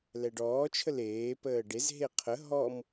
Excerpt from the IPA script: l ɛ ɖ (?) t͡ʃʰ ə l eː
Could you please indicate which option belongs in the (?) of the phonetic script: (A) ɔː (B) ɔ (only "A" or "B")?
A